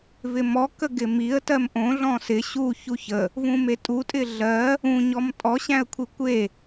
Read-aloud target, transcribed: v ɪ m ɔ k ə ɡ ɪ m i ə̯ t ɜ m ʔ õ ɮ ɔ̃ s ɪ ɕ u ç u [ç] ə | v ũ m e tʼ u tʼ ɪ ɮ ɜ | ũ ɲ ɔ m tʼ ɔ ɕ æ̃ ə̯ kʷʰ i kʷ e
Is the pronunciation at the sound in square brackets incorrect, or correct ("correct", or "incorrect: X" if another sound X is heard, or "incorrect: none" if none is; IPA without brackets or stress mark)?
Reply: correct